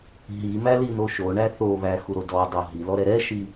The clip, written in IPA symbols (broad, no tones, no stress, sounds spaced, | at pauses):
ɦ i m æ l i n o ʃ o ɳ æ θ o β æ x u ɾ o d ɔ dˤ o ɦ i l ɔ ɾ ɛ ɾ ɛ ʃ i